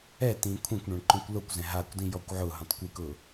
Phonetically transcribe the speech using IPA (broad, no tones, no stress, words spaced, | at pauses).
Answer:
ɛ tĩːkʷʰɛ̃kʷɳɔ̃ɳ ǃõkʷlokʷzɛ̃ ɦakʷdĩ jɔkʷʕʊɦũtˤ kʷikʊ